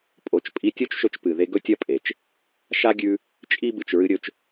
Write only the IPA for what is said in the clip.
pʼ o˨˦ t͡ʃ pʼ i˧ tʲ o˦ t͡ʃ ʃ ɵ˧ t͡ʃ p ɨ˨ ð e˧ ɡ ɵ˦ tʲ ɐ˦ pʼ e˨ t͡ʃ | ʃ a˦ ɡʲ ʉ˧ | t͡ʃʼ i˦ b ɨ˨ t͡ʃ ɹ ɨ˧ ɾʲ ɵ˧ t͡ʃ

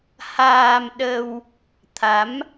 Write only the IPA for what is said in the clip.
h aː˧ m ɗ ə˧ w | t̪ʰ a˨˦ m

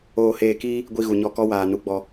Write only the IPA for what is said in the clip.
oː˧ h eː˧ k iː˦ | ɡʷ i˧ ɣ u˨ ɲ ɔ˧ k ɔ˦ w aː˨ n u˧ ɡ͡b ɔ˧

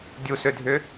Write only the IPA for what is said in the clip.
dʲ u s ø dʱ ʏ

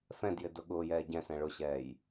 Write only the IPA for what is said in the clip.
f ɛ̃ d j ɪ d ʊ ɠ ʊː j ɛː ɟ ɛ̃ s ɛ̃ ɭ ʊ ɕ ɛː j

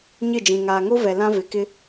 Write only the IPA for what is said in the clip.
ɲ ɪ˦˨ d͡ʒ ĩ˨ ŋ aː˨ ŋ o˦ v ɛ˨ l ã˦ v ɪ˨˦ k ɪ˦

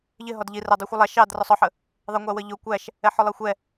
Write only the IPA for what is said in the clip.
ʎ ɪ ɦ ɔ d ʎ i r ə dˤ u xʷ ʌ lˠ æ ʃ ɑ d r ɔ sˤ ɔ ħ ə | ðˤ ɪ ŋʷ æ w ə ʎ ʊ kʷ æ ʃ | ɛ ħ ʊ lˠ ɜ xʷ ɛ

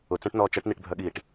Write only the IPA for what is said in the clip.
ʊ t͡s ɛ̃ ʈ n ɔː t͡ʃ ɐ ʈ n i ʈ bʱ œ ɠ iː ʈ

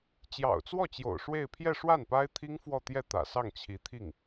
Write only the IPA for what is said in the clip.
t͡ɕ j ɑ̰˨˩ ʊ̯ t͡s w ɔ˥˩ t͡ɕ j o̰˨˩ ʊ̯ ʂ w e˥˧ ɪ̯ pʰ j ɛ˥˧ ʂ w a˥˩ n p a˥ ɪ̯ t̪ʰ i˥ ŋ f w ɔ˥˧ t̪ j ɛ˥˩ t̪ ä̰˨˩ s ɑ˥˩ ŋ t͡ɕʰ i˧˥ t̪ʰ i˥˩ ŋ

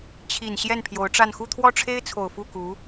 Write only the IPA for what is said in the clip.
t͡ɕʰ i˨˩ n ɕ j ɛ˥˩ n pʰ j o˧˥ ʊ̯ ʈ͡ʂ a˥˧ n x u˥˧ t̪ʰ w ɔ˥˩ ʈ͡ʂʰ e˥ ɪ̯ t͡sʰ o˨˩ ʊ̯ f u˥˩ k u˧˥

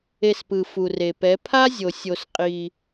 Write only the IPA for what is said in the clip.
e˧ s p ɯ˨ f u˨ r e˨ p ɛ˨˦ pʰ a˦ zʲ o˨ sʲ o˧ s qʼ i˧

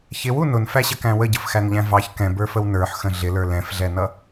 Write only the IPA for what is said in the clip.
ç ɪ w u n ʊ n f æ ɕ ə k æ̃ w ə ɟ ə f x æ n ʎ æ̃ v ɑ ç k ɛ̃ b ə˞ f ə w n ə˞ ħ x ə̃ ɮ ɪ l ə˞ l ɛ̃ f ɮ ɛ n ʌ

